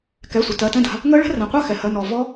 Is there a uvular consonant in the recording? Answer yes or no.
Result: yes